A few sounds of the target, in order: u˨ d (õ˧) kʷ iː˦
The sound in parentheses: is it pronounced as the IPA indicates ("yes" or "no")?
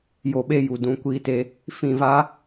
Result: no